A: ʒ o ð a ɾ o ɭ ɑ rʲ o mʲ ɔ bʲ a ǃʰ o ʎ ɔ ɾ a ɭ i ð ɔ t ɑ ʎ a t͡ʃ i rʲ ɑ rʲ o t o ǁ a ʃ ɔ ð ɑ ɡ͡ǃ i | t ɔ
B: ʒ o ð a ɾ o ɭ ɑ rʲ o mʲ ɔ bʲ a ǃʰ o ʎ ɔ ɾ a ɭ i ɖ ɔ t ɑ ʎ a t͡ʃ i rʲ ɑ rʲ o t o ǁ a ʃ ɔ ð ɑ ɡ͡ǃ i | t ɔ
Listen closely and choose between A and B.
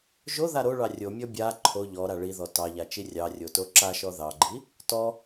A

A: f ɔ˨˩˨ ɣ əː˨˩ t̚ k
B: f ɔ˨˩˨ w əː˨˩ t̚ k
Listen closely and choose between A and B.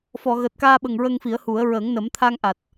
A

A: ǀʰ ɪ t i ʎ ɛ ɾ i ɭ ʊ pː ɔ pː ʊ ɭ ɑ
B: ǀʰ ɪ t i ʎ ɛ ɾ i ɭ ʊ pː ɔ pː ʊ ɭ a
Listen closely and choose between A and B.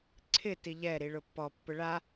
B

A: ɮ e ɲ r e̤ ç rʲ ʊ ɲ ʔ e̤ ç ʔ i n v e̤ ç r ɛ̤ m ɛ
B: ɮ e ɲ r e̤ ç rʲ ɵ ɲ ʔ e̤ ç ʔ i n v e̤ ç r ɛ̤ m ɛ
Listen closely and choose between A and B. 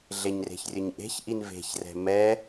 B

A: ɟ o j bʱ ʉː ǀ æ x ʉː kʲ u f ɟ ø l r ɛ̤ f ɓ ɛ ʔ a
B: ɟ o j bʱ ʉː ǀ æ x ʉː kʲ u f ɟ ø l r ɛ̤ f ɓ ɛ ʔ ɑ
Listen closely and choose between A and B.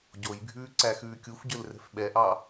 B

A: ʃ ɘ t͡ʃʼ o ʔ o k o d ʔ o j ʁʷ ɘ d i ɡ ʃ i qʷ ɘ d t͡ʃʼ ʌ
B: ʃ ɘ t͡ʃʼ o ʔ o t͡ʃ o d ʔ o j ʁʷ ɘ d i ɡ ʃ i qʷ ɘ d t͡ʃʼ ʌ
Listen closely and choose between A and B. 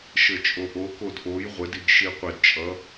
A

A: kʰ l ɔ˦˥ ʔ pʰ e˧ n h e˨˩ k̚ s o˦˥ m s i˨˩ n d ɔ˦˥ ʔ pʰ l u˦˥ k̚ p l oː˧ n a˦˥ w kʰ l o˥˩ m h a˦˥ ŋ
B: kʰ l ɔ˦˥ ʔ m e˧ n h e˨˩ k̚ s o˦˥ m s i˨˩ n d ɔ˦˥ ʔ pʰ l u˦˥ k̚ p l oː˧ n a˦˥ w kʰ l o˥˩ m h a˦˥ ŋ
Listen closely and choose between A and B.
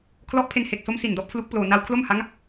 A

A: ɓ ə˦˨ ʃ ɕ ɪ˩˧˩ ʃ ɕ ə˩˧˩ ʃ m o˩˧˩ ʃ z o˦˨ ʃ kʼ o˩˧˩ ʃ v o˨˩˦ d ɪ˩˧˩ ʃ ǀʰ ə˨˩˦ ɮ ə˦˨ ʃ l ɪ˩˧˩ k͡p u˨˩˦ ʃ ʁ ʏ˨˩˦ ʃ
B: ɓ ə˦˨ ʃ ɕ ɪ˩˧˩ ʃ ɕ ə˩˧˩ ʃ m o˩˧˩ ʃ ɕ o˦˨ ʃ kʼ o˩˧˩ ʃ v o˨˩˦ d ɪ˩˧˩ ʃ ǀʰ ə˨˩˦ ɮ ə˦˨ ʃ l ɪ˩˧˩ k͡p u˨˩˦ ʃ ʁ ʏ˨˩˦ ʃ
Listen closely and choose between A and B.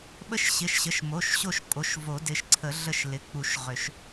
B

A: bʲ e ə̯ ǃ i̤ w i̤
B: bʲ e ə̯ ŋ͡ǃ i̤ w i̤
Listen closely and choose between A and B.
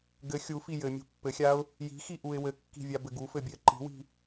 A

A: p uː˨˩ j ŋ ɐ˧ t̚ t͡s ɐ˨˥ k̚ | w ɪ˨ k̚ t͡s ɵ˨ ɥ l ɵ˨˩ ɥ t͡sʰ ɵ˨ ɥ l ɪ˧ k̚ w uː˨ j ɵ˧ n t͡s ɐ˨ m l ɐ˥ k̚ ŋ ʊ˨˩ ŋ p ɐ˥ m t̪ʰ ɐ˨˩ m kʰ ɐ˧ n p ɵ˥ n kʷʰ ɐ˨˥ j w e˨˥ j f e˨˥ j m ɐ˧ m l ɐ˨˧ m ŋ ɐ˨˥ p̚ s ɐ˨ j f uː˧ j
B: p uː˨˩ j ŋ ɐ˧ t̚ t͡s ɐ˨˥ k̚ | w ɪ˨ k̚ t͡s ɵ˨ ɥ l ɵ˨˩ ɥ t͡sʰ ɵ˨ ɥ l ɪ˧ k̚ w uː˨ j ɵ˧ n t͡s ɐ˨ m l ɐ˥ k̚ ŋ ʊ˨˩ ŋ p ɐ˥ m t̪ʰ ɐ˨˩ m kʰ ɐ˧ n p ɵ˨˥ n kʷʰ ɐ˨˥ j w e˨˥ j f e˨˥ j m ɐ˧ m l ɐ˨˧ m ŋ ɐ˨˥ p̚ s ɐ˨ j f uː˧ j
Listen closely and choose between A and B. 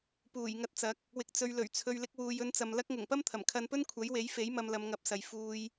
A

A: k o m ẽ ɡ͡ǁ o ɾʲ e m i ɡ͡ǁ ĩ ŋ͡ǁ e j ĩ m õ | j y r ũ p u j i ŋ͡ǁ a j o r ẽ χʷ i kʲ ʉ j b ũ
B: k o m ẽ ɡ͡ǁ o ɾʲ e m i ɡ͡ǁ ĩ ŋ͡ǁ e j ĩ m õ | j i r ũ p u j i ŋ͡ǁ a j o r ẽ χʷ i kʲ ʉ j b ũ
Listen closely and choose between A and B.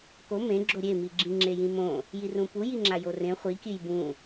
B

